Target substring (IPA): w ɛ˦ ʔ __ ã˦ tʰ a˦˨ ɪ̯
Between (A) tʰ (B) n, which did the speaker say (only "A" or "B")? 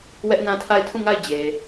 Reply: B